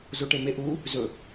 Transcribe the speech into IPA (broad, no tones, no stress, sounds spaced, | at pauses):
z o ʈ e m e ʔ u | z ɵ